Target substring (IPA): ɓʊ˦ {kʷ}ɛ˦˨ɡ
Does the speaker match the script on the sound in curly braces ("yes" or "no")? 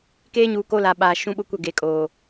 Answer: yes